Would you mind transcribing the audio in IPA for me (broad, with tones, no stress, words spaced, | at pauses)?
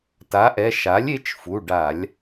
ta˩˥ʔɛ˩˧˩ ʃa˩˥lʲe˩˥t͡ʃ fu˩˧˩ɖa˧˩˧lʲ